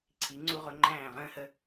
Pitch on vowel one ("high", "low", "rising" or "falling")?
rising